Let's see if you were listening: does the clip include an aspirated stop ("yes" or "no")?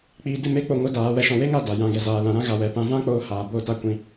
no